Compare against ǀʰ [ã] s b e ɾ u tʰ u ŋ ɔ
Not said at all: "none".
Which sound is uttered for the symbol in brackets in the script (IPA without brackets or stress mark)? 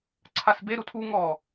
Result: a